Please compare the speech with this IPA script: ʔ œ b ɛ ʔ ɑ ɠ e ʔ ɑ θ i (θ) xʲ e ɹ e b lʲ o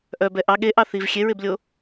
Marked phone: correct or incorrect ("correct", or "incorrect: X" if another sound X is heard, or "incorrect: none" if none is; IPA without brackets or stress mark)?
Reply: incorrect: v